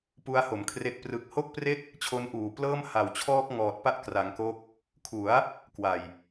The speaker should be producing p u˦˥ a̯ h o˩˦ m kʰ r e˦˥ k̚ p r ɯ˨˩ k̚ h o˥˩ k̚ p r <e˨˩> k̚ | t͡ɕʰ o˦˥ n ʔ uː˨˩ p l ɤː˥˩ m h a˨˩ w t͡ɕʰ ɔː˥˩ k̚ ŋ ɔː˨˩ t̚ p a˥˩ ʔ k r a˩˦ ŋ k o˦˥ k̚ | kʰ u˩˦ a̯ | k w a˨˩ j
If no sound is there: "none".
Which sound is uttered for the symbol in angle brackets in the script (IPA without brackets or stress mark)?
e˥˩